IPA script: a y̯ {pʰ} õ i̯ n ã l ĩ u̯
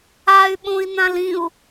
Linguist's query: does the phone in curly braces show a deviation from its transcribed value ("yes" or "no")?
yes